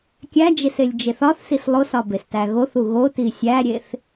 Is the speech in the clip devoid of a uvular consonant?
yes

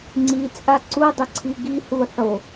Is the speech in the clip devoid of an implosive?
yes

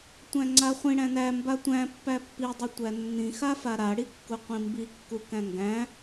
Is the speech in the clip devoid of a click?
no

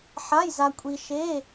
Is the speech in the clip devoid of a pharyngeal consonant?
no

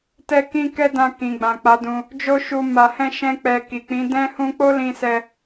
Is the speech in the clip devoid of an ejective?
yes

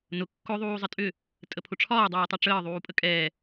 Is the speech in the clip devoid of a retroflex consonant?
no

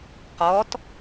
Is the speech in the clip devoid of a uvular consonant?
no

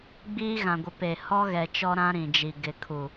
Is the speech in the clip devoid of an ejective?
yes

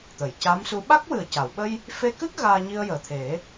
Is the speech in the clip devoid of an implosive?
no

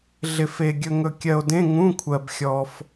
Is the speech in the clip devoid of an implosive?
yes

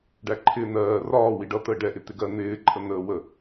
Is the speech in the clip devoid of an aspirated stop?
no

